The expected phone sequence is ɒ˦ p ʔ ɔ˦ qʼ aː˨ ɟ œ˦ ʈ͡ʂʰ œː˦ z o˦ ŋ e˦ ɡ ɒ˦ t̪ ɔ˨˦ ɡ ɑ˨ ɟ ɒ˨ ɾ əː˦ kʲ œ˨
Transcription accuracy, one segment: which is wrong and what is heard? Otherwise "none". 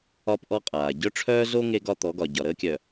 ɑ˨ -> ɒ˨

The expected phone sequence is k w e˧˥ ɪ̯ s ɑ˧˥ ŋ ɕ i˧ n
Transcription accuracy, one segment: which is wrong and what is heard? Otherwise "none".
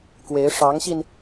s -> ʂ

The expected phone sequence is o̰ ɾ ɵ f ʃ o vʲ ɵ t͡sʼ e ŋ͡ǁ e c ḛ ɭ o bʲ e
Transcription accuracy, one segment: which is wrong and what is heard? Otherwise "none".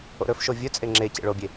none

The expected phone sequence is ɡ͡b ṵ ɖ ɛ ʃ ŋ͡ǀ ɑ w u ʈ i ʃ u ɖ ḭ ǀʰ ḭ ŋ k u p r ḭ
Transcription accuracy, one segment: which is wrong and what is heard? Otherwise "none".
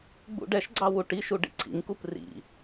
ŋ͡ǀ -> ɡ͡ǀ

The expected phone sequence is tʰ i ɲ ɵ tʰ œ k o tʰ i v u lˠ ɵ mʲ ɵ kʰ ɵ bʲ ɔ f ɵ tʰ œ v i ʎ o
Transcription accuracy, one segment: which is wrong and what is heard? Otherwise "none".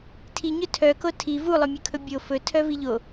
ɔ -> o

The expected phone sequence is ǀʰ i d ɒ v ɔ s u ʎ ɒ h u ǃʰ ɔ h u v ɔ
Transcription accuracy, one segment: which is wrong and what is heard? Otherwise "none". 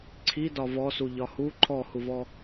none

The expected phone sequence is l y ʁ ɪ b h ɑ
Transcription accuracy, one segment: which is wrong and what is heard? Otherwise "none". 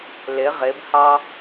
y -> ɪ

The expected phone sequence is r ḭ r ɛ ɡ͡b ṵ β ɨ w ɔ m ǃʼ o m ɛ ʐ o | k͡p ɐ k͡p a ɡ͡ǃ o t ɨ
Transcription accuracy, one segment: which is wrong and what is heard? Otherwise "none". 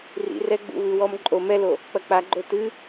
ʐ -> l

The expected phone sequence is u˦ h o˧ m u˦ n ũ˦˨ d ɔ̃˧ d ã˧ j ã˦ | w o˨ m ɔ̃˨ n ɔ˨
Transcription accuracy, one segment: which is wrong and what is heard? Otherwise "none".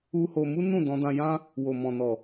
none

